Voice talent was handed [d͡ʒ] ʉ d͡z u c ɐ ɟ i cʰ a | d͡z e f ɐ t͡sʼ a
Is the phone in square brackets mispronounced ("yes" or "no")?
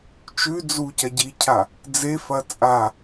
yes